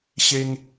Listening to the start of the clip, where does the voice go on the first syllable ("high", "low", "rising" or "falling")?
high